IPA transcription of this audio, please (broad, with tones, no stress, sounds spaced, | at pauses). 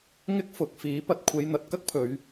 ŋ ɪ˥ k̚ f ʊ˨˥ k̚ f iː˨˥ p ɐ˧ t̚ kʷʰ e˨˧ j n̪ ɐ˨ t̚ k ɐ˥ k̚ pʰ ɵ˨˧ ɥ